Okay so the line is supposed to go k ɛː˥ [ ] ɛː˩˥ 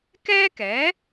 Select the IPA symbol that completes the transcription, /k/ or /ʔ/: k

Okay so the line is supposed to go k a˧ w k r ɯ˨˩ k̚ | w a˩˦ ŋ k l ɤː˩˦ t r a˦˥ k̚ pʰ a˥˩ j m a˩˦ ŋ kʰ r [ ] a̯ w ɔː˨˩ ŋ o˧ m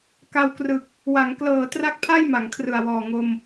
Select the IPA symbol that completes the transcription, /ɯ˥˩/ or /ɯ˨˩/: ɯ˨˩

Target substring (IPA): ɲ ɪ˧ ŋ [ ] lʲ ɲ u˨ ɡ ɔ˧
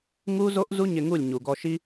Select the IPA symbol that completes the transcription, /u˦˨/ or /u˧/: u˦˨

